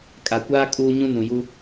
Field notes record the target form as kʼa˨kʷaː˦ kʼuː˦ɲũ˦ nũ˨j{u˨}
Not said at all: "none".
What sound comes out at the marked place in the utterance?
u˦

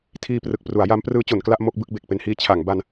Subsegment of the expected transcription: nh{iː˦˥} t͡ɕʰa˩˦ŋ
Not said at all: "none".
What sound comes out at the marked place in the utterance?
iː˦˥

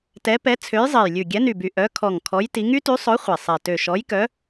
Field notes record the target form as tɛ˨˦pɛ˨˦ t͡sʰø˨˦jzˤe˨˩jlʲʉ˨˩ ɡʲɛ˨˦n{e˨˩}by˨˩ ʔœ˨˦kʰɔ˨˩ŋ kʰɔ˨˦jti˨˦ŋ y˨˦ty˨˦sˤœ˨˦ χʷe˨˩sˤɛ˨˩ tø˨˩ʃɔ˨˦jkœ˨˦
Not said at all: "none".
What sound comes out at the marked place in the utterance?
y˨˩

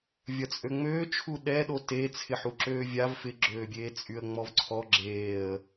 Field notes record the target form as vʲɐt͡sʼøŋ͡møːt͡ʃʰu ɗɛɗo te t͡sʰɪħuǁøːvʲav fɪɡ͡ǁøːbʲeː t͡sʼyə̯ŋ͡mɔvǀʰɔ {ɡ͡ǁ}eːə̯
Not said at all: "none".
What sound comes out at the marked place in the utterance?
ɡ͡ǁ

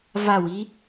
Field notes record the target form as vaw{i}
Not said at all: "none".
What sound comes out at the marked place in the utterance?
i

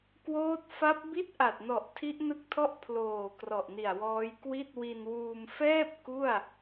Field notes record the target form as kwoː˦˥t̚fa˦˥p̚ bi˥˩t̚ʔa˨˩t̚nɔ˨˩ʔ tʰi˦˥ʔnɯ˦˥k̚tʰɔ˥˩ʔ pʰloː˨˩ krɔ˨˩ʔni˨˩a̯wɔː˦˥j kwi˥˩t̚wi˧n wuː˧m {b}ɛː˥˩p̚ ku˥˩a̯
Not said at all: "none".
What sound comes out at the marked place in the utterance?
f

